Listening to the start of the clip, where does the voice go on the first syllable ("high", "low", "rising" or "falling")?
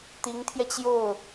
rising